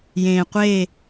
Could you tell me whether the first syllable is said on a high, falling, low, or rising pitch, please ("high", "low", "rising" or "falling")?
low